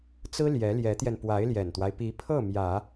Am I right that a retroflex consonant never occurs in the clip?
yes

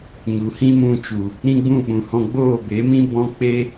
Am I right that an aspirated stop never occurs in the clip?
yes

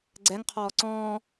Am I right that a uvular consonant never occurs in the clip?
no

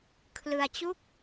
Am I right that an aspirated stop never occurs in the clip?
no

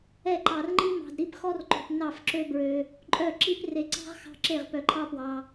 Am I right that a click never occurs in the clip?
no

